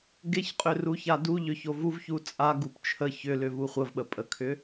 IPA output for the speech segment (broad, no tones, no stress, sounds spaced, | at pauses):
ɡ e ç qʼ ʏ r u ç a d u ʎ ʏ ç o v u v ç u t͡sʼ a ɡ u p t͡ʃʰ ə ç ʏ l ʏ v u χʷ ə v ɓ ə pʼ ə kʰ ʏ